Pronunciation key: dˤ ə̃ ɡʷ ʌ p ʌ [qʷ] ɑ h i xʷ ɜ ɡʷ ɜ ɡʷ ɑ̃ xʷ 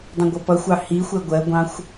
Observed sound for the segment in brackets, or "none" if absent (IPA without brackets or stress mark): xʷ